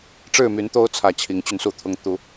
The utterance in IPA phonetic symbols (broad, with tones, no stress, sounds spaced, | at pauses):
ʈ͡ʂ ɻ̩˥˨ m y˨˦ n t̪ o˦ ʊ̯ t͡sʰ ä˨˩ t͡ɕʰ i˨˦ ŋ t͡ɕ y˧ n s u˥˨ t̪ʰ ʊ˦ ŋ t̪ u˨˦